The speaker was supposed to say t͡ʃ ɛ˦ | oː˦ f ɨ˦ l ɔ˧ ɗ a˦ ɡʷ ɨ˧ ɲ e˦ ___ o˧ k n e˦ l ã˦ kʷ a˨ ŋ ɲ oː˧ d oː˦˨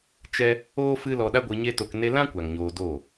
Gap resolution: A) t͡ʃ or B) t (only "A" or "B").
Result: B